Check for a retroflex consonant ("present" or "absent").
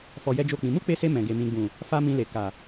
absent